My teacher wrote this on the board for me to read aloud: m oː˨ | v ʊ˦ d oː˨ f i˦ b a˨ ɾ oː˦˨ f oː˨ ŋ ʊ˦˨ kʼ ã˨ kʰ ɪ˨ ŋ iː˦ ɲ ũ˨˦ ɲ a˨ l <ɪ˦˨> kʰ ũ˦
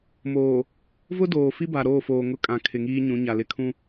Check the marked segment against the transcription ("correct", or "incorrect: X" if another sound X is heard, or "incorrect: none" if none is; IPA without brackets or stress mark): correct